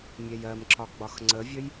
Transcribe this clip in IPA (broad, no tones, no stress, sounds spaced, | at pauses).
mʲ ɛ j ɜ m ǁ ɒ ɡ͡b ɒ x ŋ͡ǀ ə vʲ ə j